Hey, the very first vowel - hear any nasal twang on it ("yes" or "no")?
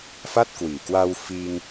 no